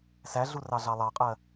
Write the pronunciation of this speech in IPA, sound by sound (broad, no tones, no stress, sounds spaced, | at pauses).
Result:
s æ ɮ u r ɑ ɮ ɑ lˠ ɑ qʼ ɜ